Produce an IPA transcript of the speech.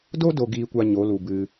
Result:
d o˦ d o˨ ɡ iː˨ kʷ a˨ ɲ o˨˦ l u˨ b ɨ˧

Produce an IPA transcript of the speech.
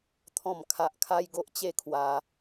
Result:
t̪ʰ ɔ̃˥˧ m kʰ a˦ ʔ kʰ a˦ j ɡ o˦ ʔ t͡ɕ e˥˧ kʰ w a˧

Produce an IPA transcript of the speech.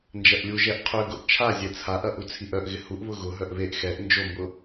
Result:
n d͡ʒ ɐ ʔ lʲ u ʒ ɛ ʔ qʰ ʏ ɡ ʊ ʔ t͡ʃʰ a zʲ ɛ t͡sʰ a ʔ ɐ ʔ u t͡sʰ i ʔ œ ʔ ɣ ɪ h u ʔ β ʊ ɣ ʊ ɦ œ ʔ β e ʔ x ɛ ʔ n d͡ʒ o m b ʊ

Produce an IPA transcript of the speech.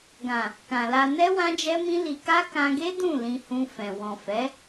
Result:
ɡ ã˨ | k ã˨ l a˧ n ɛ˦ w ã˦ d͡ʒ ɛ˦ m ĩ˦ l i˧ k a˦ k ã˧ ɡ e˦ d ũ˦˨ l ĩ˧ h ũ˧ f ɛ̃˨ w ɔ̃˨ f ɛ˨˦

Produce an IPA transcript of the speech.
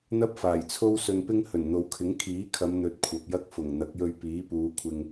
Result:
n̪ ɐ˥ p̚ f aː˨˩ j t͡sʰ o˥ w s ɵ˧ n p ɪ˥ ŋ h ɵ˨˩ n n̪ o˨ w kʰ ɪ˨˥ ŋ kʰ iː˨˥ kʰ ɐ˨˧ m n̪ ɵ˨˥ t̚ kʷʰ ɐ˨ p̚ j ɐ˥ k̚ f ʊ˨˩ ŋ n̪ ɐ˨˥ k̚ j ɵ˧ ɥ p iː˨˥ p uː˨˧ kʷʰ ɪ˧ ŋ

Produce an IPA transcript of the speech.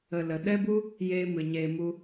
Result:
ə˨ l ə˨ ɗ ɛ˦ b u˦ | j eː˦ m ɨ˨ ɲ eː˧ m u˦

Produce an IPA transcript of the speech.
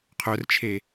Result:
qʰ œ r t͡ʃʰ e

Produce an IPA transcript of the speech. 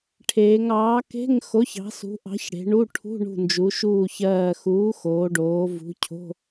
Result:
ʈʰ eː˩˧ ŋ ɑː˨˥ k e̤˧˥˧ ŋ x o˨˥ ç ɑ̤˨˥ s ṳ˨˥ ʔ ɑ̤˨˥ ç ɽ e̤˩˧ ɳ u˧˥˧ ʈʰ ṳ˧˥˧ ɳ ṳ˧˩ n d͡ʒ u˩˧ ʃ uː˧˩ ç ɜː˧˩ x uː˨˥ x oː˩˧ ɖ oː˩˧ v ṳ˨˥ cʰ o̤˧˥˧

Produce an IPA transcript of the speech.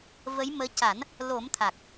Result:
v ə˧˥ j m əː˧˥ c a˨˩˦ n | l o˨˩˦ m t̪ʰ a˨˩ k̚

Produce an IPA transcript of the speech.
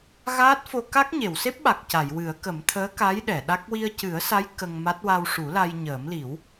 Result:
ɣ aː˦˥ t̚ f o˧ k a˦˥ k̚ ɲ e˨˩˨ w s e˦˥ p̚ ɓ a˨˩ k̚ c a˨˩˨ j w ɨ˨˩˦ ə̯ k ə˨˩˦ m t̪ʰ əː˧˥ k a˧˥ j ɗ ɛ˨˩˨ ɗ a˦˥ k̚ w i˧ ə̯ c ɨ˨˩˦ ə̯ s a˧˥ j k ə˧ ŋ m a˦˥ t̚ w a˧ w ʂ u˨˩˦ l a˧ j ɲ əː˨˩˦ m l i˨˩˦ w

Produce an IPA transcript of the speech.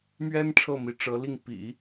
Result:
m ɥ ɛ˥ n ʈ͡ʂʰ ɤ˥˩ m i˧˥ ʈ͡ʂ ɤ˧˥ l i˥˩ ŋ p ḭ˨˩˦

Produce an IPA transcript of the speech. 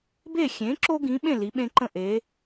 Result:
b e˥˨ xʲ ẽ˨˥ ǁ o˦ ɡ ĩ˨˥ ɓ ẽ˥˨ l i˨˥ ɓ ẽ˦ ǃ ə̃˥˨ ʔ e˨˥

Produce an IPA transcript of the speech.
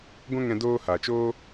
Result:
ɡʷ ɛ̃˦ ŋ ɛ̃˧ d oː˦ h a˨ t͡ʃ oː˦

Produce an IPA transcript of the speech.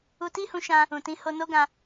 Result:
u˧ t i˦ h ũ˧ ʃ ã˧ | ũ˨ t ĩ˨˦ h o˧ n o˦ ɡ ã˧

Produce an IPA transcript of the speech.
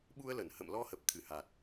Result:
ɓ u˧ ə̯ l ə˧˩ n h ə̰˧˨ m l ɔ˧ h ə˨˩ p̚ t̪ʰ ɨ˧˩ h a˨˩ t̚

